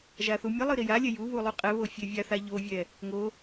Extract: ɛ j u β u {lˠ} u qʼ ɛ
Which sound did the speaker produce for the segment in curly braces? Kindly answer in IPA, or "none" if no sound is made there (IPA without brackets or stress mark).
lˠ